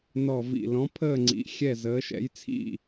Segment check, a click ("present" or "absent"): present